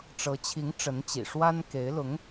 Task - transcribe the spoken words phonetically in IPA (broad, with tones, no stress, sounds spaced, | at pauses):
ʈ͡ʂ ɤ˧˥ t͡ɕʰ i˧˥ ŋ ʈ͡ʂ ə˧˥ n t͡ɕ ḭ˨˩ ʂ w a˥ n k e˧˥ ɪ̯ l ʊ˧˥ ŋ